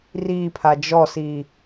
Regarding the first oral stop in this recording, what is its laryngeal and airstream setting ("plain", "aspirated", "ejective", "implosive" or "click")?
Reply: aspirated